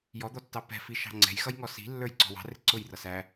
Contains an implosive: no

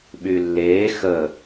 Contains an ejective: no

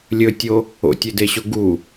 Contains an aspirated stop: no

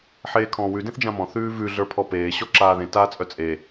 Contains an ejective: yes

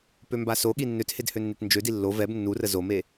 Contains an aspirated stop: no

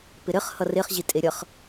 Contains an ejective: yes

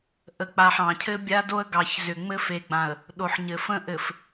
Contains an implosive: yes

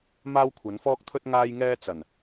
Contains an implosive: no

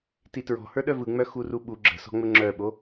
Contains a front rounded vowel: yes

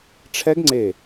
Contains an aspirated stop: yes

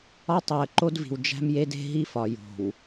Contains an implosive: no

